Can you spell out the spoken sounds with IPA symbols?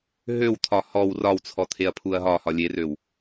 ɦ ø w t̪ʰ ɒ h ɔ w r ɒ w t͡sʰ ɔ t̪ʰ e ɐ̯ pʰ u ɐ̯ ɦ ɒ h ɒ lʲ e r ø w

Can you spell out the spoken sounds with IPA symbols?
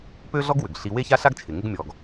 p ø˥ ɮ ɔ˥ ɡ w ʏ˩ ɡ ɬ i˧ w e˥ ç a˥ ɬ a˥ ɡ t͡ʃʰ ɪ˩ ŋ ɪ˧ ɡ mʲ ɔ˩ ɡ

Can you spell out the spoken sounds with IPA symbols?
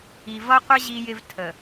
i˨ v ʌ˦ qʷ ə˦ ʑ i˦ j ɪ˦ v tʰ ə˨

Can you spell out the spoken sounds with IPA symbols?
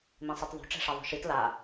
m ĩ sˤ e t ðˤ o̤ ʈ͡ʂ ɛ̤ ʂ ɛ ðˤ o̤ ʃ i t l a

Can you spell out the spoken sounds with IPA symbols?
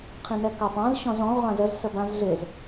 qʰ ĩ n ɛ k ɑ p ɑ̃ z ɕ ɔ̃ z ɔ̃ ʁʷ ã z ə z s ə b ã z ɮ ɪ z

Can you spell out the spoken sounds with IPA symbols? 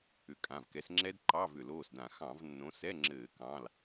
ʏ˨˦ kʼ ã˩˧˩ v k ɛ˨˦ s ŋ͡ǁ ɛ˦˥ d ǃ ɑ˧˥˧ v ʏ˧˩˧ l oː˩˧˩ s d ã˧˩˧ x ɑ̃˧˩˧ v nː õ˨˦ s ɛ˧˥˧ ŋ͡ǁ ɘː˧˩˧ k ɑ̃˩˧˩ l

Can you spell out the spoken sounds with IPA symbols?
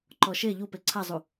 ǃ ɔ ʃ e ʎ u p e ǀʰ a zˤ u

